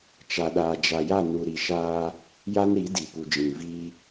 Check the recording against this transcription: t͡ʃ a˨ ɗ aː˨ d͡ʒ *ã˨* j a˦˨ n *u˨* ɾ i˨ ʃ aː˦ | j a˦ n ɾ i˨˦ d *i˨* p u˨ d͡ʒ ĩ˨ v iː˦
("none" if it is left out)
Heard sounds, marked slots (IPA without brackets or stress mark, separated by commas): a˨, u˨, i˨